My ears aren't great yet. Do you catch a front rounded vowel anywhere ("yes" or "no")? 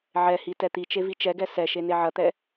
no